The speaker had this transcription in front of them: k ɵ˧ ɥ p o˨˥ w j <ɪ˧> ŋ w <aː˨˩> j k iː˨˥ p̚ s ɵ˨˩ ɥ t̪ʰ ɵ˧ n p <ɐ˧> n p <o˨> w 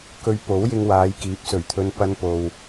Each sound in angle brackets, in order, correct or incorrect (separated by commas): correct, incorrect, correct, correct